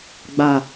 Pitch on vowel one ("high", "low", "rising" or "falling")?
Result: low